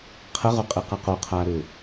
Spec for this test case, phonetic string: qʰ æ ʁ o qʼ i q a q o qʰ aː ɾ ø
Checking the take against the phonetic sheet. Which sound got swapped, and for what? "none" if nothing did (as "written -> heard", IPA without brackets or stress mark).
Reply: æ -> ə